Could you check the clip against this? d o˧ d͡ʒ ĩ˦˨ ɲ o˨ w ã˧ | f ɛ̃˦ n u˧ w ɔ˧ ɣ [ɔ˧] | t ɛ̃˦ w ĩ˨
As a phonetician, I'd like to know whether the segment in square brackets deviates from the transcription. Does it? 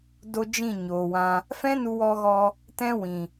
no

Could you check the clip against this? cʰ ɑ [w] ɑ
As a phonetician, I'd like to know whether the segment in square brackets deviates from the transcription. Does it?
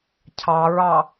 yes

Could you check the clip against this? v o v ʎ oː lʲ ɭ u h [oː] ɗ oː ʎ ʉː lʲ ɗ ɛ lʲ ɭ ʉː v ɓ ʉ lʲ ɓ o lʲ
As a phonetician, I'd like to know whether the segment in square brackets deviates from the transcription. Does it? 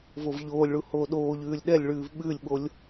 no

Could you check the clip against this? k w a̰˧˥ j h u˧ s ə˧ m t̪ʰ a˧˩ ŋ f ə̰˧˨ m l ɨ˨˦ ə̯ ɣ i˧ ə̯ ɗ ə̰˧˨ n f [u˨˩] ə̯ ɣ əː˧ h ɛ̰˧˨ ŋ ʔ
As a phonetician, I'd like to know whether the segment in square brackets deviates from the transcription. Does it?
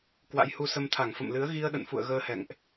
yes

